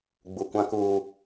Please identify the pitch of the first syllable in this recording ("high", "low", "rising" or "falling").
low